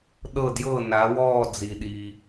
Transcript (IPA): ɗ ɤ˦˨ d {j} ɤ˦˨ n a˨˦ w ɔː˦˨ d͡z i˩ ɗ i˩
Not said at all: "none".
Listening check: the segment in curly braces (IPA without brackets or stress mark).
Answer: j